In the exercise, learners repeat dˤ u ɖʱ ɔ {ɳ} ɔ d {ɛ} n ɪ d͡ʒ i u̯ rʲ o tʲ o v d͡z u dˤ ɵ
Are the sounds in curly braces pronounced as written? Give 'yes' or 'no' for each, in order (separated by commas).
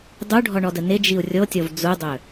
yes, no